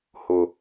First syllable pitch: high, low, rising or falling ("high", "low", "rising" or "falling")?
low